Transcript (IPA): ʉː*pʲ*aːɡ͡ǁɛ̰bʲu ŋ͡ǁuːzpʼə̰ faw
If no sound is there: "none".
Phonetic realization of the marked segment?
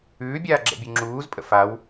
bʲ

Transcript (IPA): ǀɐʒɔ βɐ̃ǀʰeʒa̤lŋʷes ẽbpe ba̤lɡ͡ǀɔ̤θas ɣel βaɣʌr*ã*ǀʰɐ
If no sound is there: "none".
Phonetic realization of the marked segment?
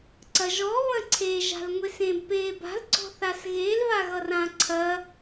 ã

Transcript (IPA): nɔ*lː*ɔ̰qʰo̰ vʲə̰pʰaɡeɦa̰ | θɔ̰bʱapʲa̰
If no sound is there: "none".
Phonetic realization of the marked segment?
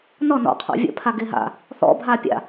n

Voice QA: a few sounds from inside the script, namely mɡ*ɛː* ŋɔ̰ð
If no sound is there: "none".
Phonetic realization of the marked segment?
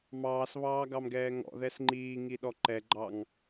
ɛː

